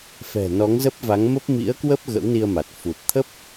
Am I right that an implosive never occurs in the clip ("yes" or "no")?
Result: yes